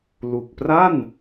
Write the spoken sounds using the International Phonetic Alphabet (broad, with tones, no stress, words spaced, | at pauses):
lu˨˩k̚pra˥˩n